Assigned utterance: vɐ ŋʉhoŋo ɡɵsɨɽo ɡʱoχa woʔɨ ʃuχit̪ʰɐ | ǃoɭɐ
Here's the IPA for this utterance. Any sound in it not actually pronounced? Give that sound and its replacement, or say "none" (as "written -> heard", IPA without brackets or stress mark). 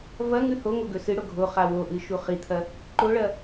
none